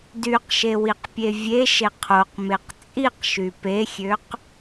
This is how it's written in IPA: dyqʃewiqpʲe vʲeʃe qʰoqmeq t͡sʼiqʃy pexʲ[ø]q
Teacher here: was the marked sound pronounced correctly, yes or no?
yes